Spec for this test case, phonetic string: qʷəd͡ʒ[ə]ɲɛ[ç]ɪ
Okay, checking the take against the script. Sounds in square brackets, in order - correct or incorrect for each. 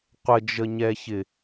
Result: correct, correct

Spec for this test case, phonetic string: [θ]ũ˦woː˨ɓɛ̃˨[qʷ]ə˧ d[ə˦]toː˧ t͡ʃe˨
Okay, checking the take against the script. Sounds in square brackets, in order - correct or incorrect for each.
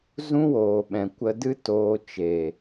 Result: incorrect, incorrect, incorrect

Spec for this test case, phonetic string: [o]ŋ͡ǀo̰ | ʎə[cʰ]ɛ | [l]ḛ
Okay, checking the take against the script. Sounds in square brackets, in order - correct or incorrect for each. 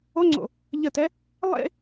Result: correct, incorrect, incorrect

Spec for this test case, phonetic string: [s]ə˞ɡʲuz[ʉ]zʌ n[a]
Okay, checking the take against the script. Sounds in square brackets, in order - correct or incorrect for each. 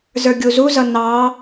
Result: incorrect, incorrect, incorrect

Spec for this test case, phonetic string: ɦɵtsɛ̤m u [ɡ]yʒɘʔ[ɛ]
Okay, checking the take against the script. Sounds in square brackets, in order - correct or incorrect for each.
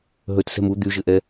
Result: incorrect, correct

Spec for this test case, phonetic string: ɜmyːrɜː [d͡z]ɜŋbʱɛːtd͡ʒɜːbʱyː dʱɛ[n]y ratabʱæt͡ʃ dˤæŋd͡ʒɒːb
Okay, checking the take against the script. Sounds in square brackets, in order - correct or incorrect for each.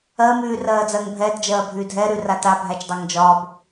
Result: correct, incorrect

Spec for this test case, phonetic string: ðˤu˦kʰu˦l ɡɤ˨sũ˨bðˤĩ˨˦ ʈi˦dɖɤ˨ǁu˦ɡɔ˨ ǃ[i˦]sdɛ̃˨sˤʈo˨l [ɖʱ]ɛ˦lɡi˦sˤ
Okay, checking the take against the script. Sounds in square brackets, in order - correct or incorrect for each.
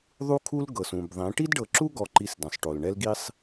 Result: correct, incorrect

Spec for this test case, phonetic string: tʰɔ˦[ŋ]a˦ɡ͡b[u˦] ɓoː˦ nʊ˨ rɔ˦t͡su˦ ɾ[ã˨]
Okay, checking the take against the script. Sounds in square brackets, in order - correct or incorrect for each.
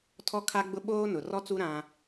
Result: incorrect, incorrect, incorrect

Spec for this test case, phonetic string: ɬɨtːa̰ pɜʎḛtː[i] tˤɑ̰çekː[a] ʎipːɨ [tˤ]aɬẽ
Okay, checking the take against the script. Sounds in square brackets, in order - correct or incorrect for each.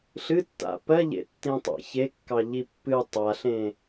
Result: incorrect, incorrect, correct

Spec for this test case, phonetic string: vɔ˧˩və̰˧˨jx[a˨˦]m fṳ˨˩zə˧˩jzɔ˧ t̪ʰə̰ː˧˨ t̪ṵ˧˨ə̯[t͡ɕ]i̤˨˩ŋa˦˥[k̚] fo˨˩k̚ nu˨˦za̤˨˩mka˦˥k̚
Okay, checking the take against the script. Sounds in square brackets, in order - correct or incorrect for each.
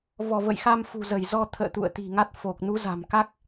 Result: incorrect, incorrect, incorrect

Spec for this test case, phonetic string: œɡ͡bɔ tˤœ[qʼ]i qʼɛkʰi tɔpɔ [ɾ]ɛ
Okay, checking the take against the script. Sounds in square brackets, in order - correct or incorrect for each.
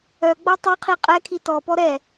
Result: incorrect, correct

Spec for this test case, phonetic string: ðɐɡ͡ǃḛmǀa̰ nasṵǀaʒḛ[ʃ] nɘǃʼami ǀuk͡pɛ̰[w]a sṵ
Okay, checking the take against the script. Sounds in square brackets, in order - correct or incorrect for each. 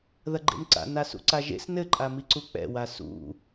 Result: incorrect, correct

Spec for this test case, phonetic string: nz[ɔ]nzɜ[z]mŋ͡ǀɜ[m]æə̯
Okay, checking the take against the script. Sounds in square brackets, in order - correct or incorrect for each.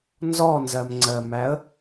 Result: correct, incorrect, correct

